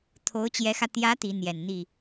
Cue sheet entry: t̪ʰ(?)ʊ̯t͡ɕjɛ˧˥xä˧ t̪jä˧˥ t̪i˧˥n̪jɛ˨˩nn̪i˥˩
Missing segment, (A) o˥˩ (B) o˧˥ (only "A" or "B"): B